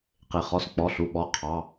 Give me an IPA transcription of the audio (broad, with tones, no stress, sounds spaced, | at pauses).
q e˩ χ ɔ˩˧˩ s k͡p ɔ˩˧˩ ɬ u˩˧˩ ɓ ɔ˩˧˩ qʰ ɑ˩˧˩